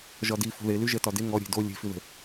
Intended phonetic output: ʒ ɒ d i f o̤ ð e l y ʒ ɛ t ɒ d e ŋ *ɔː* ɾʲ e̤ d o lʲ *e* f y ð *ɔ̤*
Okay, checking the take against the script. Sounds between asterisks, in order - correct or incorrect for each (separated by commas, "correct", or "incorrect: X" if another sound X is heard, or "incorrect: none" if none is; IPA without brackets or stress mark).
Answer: incorrect: ɔ, incorrect: e̤, incorrect: ə̤